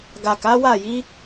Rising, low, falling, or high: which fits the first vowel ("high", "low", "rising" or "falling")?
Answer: low